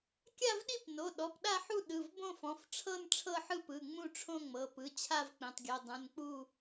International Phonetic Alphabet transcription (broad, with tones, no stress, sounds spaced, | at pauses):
kʲ a˥˧ v ɗ i˥˧ p n o˩˧˩ ɗ ɔ˩˧˩ p ɗ a˥˧ ħ u˥˧ ɗ ɯ˩˧˩ v b õ˥˧ f ɔ̃˩˧˩ f ʈ͡ʂʰ ɤ˥˧ n ʈ͡ʂʰ ɤ˥˧ ħ ɯ˥˧ p ɯ˩˧˩ ŋ͡m ũ˥˧ ʈ͡ʂʰ õ˥˧ ŋ͡m ɤ˩˧˩ p ɯ˩˧˩ t͡ɕʰ a˥˧ v k͡p ĩ˩˧˩ tˤ ɡʲ o˩˧˩ dˤ ũ˩˧˩ n k͡p u˥˧